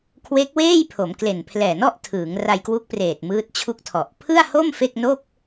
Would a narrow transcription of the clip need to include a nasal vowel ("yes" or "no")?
no